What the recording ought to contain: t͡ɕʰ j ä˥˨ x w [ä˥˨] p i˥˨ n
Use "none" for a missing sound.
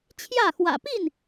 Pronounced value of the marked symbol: ä̰˨˩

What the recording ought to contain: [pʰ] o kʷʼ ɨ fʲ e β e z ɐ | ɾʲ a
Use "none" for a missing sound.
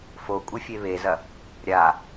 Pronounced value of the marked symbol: f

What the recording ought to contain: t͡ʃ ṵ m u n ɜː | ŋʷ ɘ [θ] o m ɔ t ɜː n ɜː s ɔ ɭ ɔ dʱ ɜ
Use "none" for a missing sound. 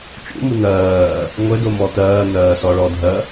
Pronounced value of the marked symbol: d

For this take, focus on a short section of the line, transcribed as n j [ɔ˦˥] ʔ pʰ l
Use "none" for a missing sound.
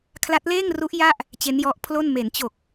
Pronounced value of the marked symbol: ɔ˦˥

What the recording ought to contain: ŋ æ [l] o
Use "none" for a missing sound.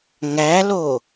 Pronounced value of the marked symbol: l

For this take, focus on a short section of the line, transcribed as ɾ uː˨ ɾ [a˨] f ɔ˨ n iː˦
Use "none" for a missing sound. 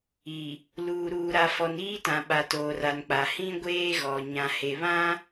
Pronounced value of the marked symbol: a˨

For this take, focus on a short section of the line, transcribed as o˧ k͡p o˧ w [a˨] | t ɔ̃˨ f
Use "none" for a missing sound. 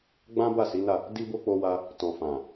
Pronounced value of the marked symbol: a˧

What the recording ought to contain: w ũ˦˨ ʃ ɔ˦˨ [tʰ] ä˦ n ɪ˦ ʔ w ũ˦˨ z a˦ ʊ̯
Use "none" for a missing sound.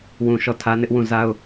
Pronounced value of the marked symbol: tʰ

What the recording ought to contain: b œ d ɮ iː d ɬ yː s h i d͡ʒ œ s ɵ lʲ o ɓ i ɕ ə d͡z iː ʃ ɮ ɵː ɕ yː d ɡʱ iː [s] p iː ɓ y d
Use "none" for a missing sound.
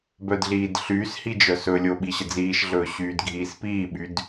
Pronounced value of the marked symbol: s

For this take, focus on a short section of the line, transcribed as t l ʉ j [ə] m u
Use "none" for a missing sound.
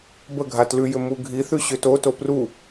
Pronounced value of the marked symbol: ʏ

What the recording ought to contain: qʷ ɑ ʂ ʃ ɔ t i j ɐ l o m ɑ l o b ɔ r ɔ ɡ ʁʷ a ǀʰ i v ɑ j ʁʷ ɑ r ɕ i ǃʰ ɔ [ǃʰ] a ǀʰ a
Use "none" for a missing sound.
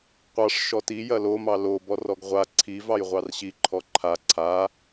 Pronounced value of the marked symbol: ǃʰ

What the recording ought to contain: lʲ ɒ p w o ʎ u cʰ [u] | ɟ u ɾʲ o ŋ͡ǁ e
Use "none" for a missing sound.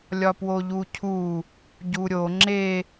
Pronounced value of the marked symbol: u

